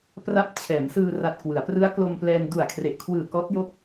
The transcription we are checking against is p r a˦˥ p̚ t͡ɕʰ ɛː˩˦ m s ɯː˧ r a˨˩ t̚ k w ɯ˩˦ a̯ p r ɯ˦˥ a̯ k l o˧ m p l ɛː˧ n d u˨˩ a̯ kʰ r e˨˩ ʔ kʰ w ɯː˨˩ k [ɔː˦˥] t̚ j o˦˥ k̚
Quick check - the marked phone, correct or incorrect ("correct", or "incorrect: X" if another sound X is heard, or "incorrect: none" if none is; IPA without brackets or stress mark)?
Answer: correct